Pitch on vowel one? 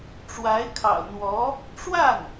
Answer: rising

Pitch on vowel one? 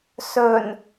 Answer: low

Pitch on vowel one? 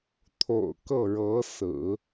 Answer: low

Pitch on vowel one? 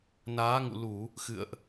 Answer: rising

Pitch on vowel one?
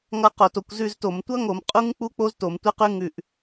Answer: falling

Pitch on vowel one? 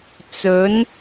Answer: rising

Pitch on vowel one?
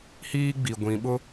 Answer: high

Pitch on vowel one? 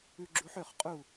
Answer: high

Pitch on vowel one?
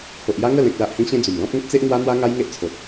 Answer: low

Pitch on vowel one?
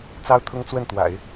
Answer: high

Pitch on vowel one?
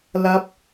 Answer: high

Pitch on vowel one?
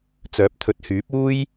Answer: rising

